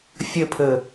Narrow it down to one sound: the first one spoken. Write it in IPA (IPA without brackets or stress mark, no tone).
fʲ